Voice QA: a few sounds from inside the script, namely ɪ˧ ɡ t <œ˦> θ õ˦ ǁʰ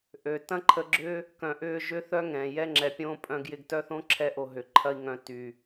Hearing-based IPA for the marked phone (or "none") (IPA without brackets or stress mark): œ˦